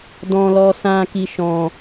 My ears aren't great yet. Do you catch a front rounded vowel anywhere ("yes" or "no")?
no